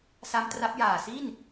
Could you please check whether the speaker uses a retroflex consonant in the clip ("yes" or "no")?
no